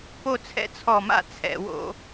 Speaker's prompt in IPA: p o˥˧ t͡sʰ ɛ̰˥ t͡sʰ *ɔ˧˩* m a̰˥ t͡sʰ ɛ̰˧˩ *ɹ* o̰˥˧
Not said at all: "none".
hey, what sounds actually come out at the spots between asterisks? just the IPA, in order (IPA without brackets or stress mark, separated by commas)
ɔ˧˩, w